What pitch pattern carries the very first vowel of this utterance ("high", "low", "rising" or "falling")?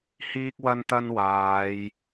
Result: high